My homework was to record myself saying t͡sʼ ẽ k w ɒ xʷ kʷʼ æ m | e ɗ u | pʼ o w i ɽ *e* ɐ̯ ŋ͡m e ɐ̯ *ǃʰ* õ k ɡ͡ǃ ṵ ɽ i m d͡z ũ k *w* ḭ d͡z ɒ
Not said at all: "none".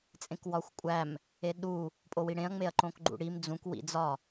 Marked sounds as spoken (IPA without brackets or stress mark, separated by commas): ẽ, ǃ, w